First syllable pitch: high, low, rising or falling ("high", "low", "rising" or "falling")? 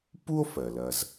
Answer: high